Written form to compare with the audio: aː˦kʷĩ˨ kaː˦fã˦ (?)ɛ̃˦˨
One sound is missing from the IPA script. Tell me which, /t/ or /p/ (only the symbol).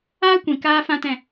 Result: t